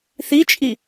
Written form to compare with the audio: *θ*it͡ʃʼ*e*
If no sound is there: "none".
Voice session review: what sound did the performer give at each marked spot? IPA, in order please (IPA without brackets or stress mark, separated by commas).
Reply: θ, i